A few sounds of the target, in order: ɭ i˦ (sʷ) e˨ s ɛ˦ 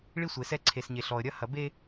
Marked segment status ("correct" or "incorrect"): correct